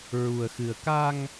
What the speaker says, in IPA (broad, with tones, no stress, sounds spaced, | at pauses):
ɹ u˧ ə̯ x ɨ˧ ə̯ k a˧ ŋ